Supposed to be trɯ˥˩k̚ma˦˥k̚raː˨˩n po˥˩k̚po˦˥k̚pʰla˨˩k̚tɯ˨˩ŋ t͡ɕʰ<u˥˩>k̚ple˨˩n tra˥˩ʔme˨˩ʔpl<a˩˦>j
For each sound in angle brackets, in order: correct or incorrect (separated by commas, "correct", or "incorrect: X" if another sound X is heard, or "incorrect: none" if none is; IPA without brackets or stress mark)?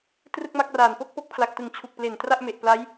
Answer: incorrect: u˨˩, incorrect: a˦˥